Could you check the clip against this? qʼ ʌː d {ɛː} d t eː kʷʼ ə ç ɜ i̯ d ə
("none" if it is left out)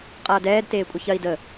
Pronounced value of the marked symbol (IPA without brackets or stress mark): ɛː